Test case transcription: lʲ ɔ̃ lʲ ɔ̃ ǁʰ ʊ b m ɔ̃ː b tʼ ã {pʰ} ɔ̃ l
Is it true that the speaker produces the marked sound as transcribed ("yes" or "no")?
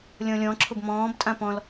no